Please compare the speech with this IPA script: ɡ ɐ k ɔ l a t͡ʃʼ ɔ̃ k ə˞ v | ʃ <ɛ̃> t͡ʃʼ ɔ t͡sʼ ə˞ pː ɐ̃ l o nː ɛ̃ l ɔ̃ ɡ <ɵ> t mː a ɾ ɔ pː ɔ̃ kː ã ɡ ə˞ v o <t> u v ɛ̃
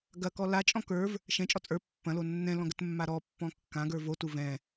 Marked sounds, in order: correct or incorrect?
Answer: correct, incorrect, correct

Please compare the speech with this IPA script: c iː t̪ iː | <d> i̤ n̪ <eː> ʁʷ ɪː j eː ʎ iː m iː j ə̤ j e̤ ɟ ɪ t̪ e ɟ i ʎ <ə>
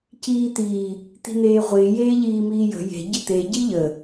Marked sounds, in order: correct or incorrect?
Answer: incorrect, correct, correct

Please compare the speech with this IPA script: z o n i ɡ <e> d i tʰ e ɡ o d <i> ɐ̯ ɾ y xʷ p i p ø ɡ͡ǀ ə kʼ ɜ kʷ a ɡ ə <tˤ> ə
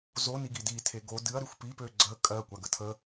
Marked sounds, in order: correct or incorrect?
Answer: incorrect, incorrect, incorrect

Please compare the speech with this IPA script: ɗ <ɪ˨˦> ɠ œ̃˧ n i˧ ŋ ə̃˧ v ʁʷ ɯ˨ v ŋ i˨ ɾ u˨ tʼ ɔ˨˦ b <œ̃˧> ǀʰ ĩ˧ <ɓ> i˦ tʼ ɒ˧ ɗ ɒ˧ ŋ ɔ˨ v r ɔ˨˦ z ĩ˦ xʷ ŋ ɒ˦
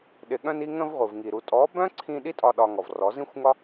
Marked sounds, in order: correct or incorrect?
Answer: incorrect, incorrect, incorrect

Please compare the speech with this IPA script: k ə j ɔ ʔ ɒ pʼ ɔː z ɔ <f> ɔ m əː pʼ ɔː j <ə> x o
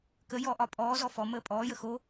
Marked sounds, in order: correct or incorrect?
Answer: correct, correct

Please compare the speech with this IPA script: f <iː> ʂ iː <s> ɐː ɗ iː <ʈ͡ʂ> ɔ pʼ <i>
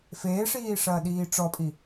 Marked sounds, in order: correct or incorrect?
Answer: incorrect, incorrect, correct, correct

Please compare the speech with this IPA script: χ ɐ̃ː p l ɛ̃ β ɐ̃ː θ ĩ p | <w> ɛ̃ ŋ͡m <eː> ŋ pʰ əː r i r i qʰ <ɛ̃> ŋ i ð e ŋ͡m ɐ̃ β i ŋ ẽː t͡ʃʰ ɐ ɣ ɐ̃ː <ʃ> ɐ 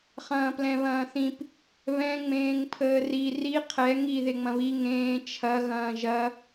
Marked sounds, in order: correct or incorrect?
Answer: incorrect, incorrect, incorrect, incorrect

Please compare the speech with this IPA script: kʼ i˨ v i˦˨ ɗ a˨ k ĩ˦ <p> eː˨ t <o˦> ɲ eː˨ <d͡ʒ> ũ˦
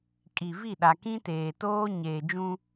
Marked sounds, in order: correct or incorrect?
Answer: incorrect, incorrect, correct

